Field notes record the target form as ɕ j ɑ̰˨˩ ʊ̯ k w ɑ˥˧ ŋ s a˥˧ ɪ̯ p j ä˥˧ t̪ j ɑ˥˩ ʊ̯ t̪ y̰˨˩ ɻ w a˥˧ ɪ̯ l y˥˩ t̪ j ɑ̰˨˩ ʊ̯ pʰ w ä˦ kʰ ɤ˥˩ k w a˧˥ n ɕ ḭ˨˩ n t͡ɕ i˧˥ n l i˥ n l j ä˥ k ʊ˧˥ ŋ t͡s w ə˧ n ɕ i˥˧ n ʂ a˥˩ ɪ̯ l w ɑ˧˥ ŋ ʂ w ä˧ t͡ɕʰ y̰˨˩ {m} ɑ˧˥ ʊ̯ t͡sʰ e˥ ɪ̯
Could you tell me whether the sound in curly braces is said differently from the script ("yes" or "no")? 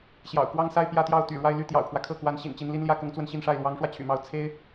no